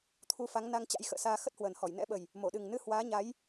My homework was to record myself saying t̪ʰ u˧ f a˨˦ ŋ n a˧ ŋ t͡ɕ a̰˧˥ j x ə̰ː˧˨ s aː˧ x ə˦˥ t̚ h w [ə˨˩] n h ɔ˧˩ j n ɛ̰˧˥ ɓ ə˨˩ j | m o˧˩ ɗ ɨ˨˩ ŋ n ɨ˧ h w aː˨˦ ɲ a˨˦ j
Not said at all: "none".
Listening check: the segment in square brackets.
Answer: ə˨˩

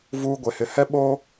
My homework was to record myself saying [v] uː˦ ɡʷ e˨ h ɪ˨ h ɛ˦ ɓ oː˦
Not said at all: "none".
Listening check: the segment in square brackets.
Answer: v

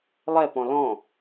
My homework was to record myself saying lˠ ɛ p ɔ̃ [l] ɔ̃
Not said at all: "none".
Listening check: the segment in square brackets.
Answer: l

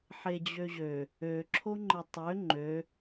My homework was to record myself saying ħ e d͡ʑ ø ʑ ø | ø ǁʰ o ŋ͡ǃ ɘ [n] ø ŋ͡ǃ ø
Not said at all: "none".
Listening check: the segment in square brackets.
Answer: tˤ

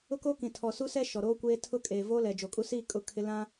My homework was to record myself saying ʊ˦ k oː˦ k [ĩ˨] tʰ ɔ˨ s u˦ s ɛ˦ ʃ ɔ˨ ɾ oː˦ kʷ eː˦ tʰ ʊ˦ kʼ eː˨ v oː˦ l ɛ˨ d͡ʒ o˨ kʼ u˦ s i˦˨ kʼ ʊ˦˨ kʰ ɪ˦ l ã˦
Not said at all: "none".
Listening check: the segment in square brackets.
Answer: ĩ˨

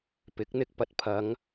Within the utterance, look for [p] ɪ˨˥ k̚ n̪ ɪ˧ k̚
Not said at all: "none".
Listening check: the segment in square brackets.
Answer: p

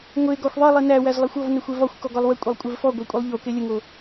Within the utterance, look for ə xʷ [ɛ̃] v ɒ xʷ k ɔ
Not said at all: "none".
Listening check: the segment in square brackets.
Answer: ɛ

